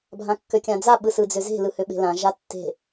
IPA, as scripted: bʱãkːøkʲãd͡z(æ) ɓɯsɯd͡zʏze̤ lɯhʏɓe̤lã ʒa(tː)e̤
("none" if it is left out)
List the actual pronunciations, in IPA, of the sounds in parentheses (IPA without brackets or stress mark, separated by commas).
a, tː